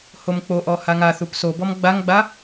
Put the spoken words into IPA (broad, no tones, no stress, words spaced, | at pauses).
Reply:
homk͡poʔɔ haŋaθup sobɔm ɡ͡baŋɡ͡ba